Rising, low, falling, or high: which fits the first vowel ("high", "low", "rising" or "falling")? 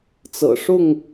low